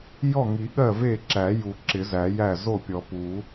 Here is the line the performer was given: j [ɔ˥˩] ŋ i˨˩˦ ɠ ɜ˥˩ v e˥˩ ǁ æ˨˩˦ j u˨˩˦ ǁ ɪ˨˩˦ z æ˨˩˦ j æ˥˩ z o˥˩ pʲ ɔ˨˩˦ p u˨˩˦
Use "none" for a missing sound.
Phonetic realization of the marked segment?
ɔ˥˩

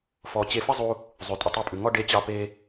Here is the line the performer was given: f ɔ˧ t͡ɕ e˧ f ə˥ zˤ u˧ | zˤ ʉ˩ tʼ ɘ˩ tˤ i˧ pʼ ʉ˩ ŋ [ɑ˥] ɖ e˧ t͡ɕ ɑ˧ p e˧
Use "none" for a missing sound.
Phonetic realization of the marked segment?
ɔ˥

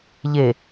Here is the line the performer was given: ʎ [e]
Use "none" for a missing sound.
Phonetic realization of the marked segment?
e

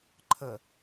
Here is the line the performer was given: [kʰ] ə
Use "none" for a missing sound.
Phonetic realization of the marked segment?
ǃʰ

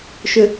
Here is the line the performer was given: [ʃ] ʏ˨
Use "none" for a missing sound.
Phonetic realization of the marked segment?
ʃ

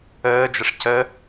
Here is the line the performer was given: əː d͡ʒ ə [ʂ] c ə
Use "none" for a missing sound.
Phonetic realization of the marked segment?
ʂ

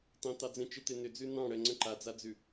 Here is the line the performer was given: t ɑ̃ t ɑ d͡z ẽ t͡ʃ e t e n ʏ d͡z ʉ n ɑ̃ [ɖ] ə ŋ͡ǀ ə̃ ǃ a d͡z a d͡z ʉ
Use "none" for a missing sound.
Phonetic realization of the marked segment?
ɽ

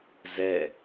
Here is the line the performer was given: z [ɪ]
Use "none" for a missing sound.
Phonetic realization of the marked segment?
ɛ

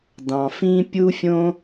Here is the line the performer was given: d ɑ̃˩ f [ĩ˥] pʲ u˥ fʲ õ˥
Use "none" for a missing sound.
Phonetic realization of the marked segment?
ĩ˥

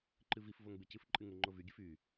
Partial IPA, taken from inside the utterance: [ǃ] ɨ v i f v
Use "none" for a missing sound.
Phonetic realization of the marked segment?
ǃ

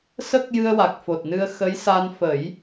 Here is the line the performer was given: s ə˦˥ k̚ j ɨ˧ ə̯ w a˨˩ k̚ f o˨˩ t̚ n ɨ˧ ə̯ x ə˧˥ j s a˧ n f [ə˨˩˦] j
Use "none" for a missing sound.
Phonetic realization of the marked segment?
ə˨˩˦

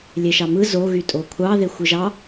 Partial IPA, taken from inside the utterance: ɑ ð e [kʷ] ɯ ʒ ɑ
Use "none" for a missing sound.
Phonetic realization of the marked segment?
xʷ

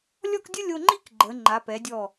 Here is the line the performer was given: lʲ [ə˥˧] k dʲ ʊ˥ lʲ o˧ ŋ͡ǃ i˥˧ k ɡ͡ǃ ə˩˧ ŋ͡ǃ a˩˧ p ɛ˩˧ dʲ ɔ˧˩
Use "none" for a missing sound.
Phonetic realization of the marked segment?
ɔ˥˧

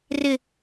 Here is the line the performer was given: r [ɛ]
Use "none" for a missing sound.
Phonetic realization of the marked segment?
ɪ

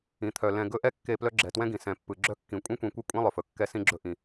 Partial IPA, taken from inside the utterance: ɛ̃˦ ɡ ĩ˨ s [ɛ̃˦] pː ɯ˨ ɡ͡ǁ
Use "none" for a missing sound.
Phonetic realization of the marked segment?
ɛ̃˨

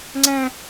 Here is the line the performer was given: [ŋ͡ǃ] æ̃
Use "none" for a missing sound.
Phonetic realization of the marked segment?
ŋ͡ǀ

